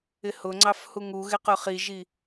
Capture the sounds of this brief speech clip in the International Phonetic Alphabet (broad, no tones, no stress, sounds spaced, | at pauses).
ɪ h ʊ ŋ͡ǀ ɑ f h u ŋ u ɣ ɪ q ʊ χ i ʒ i